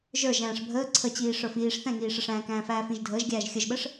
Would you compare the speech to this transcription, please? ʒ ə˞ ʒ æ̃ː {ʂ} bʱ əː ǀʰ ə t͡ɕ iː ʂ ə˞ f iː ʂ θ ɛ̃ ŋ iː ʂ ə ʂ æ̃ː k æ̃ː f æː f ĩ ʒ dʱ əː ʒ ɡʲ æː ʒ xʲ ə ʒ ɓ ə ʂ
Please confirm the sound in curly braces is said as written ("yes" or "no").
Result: yes